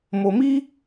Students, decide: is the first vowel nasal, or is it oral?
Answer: oral